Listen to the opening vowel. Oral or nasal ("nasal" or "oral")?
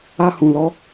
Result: oral